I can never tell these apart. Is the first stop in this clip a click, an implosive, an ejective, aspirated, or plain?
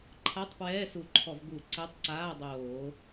click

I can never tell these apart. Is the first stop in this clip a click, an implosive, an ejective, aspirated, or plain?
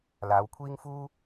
aspirated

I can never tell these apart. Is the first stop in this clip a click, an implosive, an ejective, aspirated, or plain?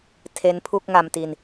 aspirated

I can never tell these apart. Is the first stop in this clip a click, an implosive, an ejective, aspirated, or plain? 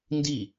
plain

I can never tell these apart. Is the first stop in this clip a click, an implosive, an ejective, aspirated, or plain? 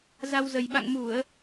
implosive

